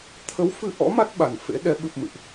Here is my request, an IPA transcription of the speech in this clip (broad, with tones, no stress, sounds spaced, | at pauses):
t̪ʰ ə˨˦ w f ɨ˧ ʔ ɔ̰˧˥ m a˦˥ t̚ ɓ a˨˩ n f ḛ˧˥ ɗ ɛ˨˦ ɓ ɨ˨˩ p̚ m ɨ̰˧˨ ʔ